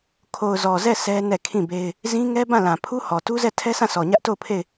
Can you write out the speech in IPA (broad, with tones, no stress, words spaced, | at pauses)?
kʰo˨ʊ̯zɔ˨zɛ˦˨ sʰɛ˦ nɛ˦˨kʰĩ˦˨be˦ɪ̯ | zĩ˦ŋɛ˦ bã˦˨lã˨pʰu˦hɔ˨ tu˦zɛ˦˨tʰɛ˦sʰã˦˨ sʰɔ˨ɲä˦ʔto˦˨ʊ̯pʰe˦˨ɪ̯